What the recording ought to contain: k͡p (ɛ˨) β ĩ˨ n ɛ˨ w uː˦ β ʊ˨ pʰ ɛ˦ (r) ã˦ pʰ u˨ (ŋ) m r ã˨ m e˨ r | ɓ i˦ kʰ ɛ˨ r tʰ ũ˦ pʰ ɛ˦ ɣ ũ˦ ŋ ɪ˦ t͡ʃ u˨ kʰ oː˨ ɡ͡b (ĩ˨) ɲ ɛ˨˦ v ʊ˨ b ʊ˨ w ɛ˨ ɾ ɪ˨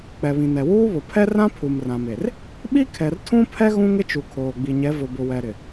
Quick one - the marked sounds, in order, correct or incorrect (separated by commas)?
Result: correct, correct, incorrect, incorrect